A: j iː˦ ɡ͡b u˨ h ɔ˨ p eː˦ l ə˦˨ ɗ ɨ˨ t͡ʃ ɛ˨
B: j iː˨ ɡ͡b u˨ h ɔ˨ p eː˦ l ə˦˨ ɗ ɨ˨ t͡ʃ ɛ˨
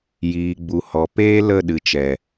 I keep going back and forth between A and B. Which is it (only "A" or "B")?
B